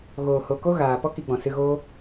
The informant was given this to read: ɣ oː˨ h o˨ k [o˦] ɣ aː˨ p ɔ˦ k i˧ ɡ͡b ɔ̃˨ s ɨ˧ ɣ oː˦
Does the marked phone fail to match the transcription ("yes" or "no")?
no